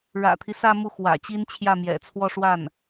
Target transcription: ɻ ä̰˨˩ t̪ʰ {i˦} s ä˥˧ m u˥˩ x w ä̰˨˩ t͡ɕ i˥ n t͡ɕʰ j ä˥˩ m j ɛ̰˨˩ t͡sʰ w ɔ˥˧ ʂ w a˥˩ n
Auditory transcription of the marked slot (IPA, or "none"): i˦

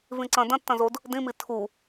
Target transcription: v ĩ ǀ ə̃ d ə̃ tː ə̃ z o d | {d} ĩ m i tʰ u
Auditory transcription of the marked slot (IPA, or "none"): d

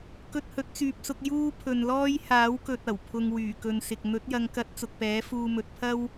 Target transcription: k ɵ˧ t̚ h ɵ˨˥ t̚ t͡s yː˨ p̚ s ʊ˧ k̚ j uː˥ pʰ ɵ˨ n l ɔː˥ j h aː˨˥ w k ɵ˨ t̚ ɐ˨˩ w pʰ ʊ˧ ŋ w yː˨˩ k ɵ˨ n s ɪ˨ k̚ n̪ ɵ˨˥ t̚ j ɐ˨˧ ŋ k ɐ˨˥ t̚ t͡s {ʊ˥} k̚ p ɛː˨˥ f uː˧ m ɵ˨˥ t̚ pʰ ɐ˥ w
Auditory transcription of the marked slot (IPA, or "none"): ʊ˨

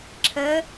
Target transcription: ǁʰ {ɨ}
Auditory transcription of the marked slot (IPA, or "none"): ə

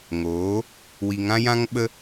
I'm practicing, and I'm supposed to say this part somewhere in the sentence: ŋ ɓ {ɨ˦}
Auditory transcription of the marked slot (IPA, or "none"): ə˦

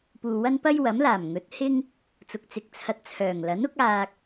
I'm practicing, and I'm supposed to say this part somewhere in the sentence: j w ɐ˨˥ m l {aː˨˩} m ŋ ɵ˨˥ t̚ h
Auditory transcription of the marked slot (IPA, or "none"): aː˨˩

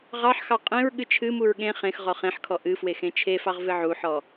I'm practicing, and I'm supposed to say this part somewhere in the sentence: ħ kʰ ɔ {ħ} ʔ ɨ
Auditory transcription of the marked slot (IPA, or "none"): none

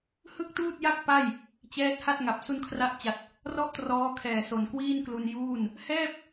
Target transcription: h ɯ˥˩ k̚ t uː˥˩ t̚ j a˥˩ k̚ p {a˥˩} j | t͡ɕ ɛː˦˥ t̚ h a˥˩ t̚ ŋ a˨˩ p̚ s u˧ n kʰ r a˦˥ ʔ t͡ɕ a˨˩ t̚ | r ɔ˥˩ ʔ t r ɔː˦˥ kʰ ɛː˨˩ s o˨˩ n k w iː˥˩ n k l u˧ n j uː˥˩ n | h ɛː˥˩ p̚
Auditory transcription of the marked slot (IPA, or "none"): a˥˩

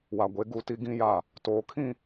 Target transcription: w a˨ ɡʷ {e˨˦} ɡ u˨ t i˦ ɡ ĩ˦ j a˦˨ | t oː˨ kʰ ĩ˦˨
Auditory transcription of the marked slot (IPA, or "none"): e˨˦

